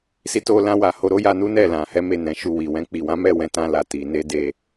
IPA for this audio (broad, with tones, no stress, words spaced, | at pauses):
si˧to˧lã˧wa˨ ho˧ɾo˦ja˧nu˦ nɛ˦˨ lã˨hɛ˨˦ me˦˨nɛ̃˨˦ʃu˧wi˨ wɛ̃˧k͡pi˨wã˨˦mɛ˦˨ wɛ̃˧tã˧la˨ ti˨ ne˧de˧